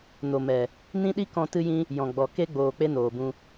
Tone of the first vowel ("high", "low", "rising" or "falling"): low